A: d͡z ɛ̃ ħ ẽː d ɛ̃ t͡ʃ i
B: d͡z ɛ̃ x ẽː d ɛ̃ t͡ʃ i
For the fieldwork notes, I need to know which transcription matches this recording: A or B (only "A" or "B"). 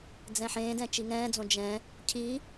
A